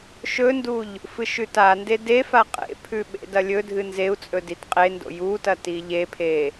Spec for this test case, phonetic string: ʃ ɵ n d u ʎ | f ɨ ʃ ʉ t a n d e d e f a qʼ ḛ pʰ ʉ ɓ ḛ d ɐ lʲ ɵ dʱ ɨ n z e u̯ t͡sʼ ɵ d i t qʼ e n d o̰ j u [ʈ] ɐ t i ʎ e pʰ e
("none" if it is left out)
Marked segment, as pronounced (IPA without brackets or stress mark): t